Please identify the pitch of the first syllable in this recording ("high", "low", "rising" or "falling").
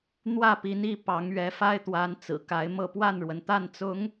falling